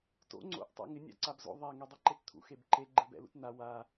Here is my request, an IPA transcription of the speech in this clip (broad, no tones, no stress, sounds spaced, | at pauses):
t o̰ ŋ͡ǀ o̰ ʔ tˤ a̰ ŋ ɪ nʲ a̰ ǀ a b z o̰ ðˤ a ŋ ɛ dˤ i ǃ e t t̪ʰ ṵ x e b ǃ e ɡ͡ǃ e b ɛ̰ l ṵ t n̪ a w a